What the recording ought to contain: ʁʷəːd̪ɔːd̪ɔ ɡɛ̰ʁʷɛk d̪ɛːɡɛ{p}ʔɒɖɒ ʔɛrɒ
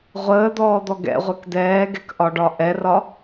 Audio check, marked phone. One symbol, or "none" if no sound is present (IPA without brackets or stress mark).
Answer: k